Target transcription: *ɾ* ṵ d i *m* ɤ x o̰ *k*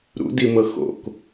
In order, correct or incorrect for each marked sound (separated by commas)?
correct, correct, correct